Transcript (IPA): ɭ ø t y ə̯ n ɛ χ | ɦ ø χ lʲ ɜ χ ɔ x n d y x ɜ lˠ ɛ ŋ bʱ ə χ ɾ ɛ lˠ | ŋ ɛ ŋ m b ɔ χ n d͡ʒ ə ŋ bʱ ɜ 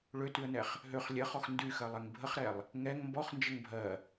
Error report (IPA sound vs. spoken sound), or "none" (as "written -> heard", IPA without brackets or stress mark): none